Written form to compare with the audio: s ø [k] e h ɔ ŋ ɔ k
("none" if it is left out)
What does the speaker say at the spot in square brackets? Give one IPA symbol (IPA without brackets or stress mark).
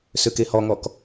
k